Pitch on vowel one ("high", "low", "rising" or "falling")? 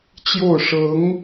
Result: falling